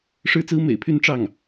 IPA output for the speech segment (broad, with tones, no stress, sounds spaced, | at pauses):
ʂ ɻ̩˥ t͡s ɹ̩˥ m ḛ˨˩ ɪ̯ pʰ y˥˧ n ʈ͡ʂ ɑ˥˩ ŋ